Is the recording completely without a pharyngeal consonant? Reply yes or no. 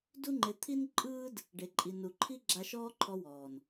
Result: yes